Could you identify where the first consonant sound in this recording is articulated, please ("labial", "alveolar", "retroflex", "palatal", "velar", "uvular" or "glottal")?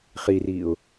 uvular